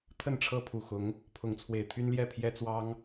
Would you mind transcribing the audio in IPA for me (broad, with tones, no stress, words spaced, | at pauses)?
t̪ʰə˥˨nʈ͡ʂʰɤ˦pʰu˨˩xʊ˨˦ŋ | pʰʊ˨˦ŋt͡sʰwe˨˩ɪ̯t̪ʰy˦nljɛ˥˨ pʰjɛ˦t͡swɑ˦ŋ